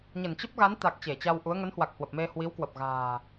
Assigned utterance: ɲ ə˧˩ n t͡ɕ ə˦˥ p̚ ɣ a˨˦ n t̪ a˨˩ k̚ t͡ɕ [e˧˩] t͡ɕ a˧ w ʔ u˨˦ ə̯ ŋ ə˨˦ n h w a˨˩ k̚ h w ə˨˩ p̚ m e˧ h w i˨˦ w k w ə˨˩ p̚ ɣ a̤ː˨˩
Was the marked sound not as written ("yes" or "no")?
no